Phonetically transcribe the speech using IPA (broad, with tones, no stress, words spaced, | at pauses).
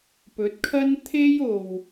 pɵ˨˥t̚kʰɐ˥n t̪ʰe˥jo˨w